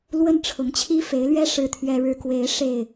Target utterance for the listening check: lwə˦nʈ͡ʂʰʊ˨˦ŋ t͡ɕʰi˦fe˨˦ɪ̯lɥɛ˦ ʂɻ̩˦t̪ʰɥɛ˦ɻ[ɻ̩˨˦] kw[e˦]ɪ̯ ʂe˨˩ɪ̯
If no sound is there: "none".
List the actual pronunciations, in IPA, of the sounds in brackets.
ɻ̩˦, e˨˦

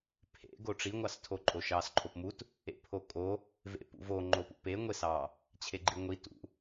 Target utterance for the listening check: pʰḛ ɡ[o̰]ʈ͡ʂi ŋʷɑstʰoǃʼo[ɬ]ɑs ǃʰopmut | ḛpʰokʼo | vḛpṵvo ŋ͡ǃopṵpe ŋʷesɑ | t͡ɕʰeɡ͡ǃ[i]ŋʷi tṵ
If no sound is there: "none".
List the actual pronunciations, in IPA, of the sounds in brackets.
o, ʃ, i

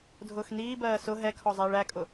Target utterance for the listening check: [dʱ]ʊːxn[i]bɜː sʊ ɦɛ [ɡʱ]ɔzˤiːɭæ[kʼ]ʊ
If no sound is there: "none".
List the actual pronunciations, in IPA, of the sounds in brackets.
dʱ, iː, kʰ, kʼ

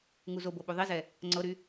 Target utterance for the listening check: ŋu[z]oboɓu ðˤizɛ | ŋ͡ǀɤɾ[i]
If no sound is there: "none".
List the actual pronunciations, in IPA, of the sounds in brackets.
z, y

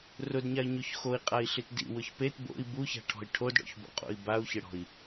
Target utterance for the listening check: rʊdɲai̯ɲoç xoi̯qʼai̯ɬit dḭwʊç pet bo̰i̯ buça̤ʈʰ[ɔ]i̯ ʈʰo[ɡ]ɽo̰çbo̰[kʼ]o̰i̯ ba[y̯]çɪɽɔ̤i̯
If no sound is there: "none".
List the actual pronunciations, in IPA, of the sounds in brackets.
ɔ̤, d, qʼ, u̯

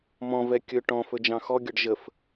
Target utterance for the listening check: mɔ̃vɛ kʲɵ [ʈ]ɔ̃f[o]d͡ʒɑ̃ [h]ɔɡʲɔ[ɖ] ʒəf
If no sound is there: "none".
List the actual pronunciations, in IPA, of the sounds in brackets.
ʈ, ɵ, x, ɖ

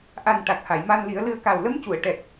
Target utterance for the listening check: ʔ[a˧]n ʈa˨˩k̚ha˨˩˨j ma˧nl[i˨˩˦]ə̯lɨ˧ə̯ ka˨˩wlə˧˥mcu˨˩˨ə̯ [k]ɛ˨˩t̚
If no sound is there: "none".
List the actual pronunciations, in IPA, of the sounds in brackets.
a˨˩, i˨˩˦, ʈ

